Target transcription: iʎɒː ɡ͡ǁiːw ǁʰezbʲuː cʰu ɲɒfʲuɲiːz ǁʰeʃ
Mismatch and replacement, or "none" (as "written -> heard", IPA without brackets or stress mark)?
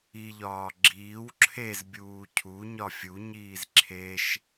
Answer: none